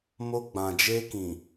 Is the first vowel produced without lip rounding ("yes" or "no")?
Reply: no